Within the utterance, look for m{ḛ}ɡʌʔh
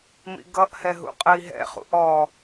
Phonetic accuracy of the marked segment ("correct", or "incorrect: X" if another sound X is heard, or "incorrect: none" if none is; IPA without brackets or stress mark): incorrect: ḭ